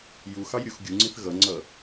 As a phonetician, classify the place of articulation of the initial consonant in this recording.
palatal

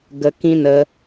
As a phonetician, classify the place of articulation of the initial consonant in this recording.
velar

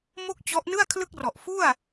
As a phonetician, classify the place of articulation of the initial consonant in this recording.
labial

